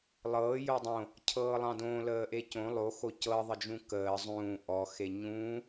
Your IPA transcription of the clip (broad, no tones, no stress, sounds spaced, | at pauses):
lˠ ɤː j o dˤ õ | cʰ ɤː lˠ ɑ̃ d õ l əː ʔ e c õ lˠ o x o c ɤ ðˤ ə d͡ʒ ũ k əː zˤ ũː ʔ ɔ x e ɲ ũː